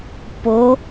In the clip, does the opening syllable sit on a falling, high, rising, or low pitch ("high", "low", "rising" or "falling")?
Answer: rising